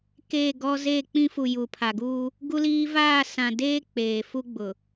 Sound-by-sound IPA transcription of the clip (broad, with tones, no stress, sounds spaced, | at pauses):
k eː˦˨ ɡ ɔ˦ z eː˦˨ k͡p ĩ˦ f u˨ j uː˨ pʰ aː˨ ɡ uː˦ | ɡ u˦ l iː˦ v aː˦˨ s ã˨ d eː˦ k͡p eː˨ f u˦ ɡ͡b ʊ˨